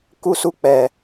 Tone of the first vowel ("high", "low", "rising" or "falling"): high